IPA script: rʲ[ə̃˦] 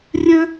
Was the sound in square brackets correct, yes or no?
yes